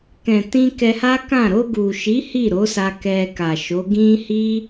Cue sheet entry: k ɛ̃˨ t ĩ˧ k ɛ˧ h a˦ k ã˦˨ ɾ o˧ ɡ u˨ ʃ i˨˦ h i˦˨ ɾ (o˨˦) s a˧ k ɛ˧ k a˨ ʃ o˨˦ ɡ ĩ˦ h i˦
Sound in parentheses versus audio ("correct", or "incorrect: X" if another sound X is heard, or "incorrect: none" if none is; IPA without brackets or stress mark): correct